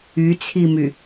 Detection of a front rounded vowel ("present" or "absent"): present